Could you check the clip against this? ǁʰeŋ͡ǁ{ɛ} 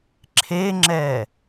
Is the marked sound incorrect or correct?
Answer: correct